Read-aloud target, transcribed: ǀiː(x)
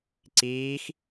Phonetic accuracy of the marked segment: correct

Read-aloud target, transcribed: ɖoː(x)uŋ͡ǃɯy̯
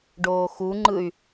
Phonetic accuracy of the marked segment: correct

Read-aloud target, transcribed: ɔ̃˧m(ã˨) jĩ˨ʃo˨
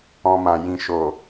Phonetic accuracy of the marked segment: correct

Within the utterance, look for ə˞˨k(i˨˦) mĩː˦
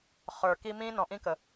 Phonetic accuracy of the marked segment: incorrect: i˦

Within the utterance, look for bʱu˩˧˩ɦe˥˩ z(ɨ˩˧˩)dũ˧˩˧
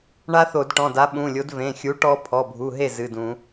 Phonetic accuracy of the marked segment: correct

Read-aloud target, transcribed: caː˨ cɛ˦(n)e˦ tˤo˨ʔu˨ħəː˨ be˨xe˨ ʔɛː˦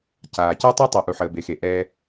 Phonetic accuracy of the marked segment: incorrect: tˤ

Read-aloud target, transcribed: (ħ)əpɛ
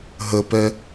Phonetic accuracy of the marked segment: incorrect: ɦ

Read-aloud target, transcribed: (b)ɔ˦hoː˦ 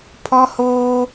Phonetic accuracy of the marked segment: incorrect: pʰ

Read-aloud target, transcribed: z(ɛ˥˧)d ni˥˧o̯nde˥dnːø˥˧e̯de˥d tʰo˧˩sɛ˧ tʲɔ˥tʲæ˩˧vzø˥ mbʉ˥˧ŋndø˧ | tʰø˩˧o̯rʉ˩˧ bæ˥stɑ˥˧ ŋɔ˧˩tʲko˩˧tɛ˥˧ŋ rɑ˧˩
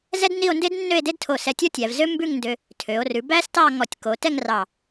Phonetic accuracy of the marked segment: incorrect: ɛ˥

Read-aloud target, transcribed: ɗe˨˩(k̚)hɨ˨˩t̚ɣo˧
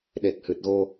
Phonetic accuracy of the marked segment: correct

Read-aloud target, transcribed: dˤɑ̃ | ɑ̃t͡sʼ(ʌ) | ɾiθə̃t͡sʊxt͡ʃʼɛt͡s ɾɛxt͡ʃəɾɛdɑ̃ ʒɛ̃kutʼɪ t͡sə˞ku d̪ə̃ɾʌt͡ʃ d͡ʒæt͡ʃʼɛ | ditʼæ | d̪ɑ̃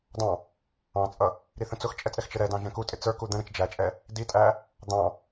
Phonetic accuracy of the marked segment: correct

